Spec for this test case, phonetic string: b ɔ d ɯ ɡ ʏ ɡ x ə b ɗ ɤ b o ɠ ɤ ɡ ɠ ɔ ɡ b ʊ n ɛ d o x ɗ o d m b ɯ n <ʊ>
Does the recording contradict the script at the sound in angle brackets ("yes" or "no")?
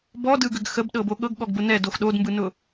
no